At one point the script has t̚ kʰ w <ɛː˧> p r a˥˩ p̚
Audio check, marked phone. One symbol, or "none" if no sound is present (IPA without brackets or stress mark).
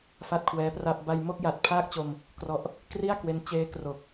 ɛː˦˥